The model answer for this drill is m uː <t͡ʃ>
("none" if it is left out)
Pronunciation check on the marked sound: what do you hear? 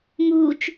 t͡ʃ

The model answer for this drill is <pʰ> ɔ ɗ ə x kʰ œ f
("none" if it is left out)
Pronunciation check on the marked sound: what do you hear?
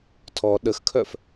tʰ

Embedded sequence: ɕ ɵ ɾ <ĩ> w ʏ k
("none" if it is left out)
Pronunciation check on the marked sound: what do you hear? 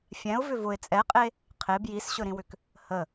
ĩ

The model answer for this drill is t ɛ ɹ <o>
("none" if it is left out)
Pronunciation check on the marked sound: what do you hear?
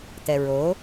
o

